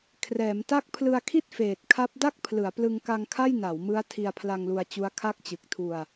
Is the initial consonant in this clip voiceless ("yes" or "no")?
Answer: yes